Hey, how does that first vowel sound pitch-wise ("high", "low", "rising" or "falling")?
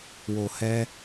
low